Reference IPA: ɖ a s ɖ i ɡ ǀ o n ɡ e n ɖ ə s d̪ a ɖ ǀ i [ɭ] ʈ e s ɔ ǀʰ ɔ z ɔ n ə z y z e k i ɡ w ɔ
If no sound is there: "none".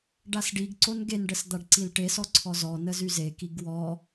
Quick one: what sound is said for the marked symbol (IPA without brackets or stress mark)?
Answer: l